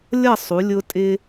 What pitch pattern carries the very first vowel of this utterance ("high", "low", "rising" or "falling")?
falling